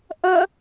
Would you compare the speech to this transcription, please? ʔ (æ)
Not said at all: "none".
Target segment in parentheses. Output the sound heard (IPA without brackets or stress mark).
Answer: ɐ